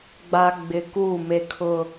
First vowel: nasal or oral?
oral